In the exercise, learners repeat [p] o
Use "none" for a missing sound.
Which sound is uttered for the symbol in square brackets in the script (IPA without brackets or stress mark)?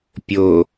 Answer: pʲ